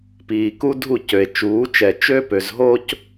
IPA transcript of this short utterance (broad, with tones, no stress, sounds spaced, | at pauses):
p iː˨ k u˦ dʱ u˦˨ c ø˨ e̯ t͡ʃ uː˨˦ t͡ʃ ɛ˨ t͡ʃ ø˦ p ø˨ z ɦ o˦ c